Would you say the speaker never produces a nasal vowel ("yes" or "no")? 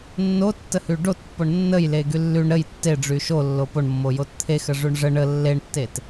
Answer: yes